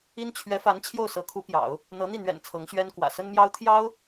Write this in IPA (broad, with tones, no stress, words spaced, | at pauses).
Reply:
i˥n t͡ɕʰɥɛ˧˥fa˧˥n t͡ɕʰjo˥˩ʊ̯sɤ˧˥kʰu˧˥pjɑ̰˨˩˦ʊ̯ | n̪ɤ˧˥n̪i˥˩n̪ɥɛ̰˨˩n t͡sʰɤ˧˥ŋɕɥɛ˥n kwä̰˨˩sə˥nmjɑ˥ʊ̯ t̪ʰjɑ˥ʊ̯